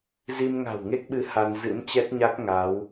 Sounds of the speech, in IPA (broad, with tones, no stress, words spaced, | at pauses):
zi˧mŋa̤˨˩wŋe˦˥k̚ɓɨ˨˦ ha˧n zɨ̰˧˥mt͡ɕɛ˦˥t̚ɲa˦˥k̚ ŋa˨˦w